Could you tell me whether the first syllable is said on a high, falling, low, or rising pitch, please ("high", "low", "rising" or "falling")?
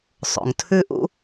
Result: low